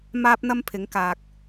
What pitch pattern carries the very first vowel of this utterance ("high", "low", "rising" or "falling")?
high